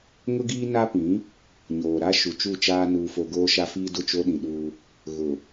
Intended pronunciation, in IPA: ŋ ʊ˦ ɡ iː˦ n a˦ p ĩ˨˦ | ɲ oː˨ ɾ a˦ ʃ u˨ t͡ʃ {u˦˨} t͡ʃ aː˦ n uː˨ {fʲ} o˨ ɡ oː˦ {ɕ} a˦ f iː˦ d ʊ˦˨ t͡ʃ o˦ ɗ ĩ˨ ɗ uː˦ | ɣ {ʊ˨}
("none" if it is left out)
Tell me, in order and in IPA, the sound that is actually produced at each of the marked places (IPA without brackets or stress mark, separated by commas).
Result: u˦˨, f, ʃ, ʊ˨